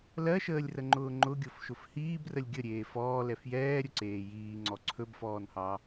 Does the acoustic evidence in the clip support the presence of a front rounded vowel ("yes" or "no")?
no